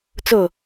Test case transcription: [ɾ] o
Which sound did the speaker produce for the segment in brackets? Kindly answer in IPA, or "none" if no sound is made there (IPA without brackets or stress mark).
t͡s